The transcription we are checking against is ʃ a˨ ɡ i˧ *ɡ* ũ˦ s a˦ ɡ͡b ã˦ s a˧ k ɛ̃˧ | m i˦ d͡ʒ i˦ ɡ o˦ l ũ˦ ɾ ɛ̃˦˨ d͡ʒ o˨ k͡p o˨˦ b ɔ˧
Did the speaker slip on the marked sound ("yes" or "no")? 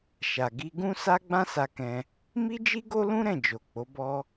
no